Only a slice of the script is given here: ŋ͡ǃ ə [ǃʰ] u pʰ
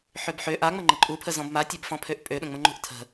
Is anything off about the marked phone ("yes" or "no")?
yes